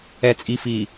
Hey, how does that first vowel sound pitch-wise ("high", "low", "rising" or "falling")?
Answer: low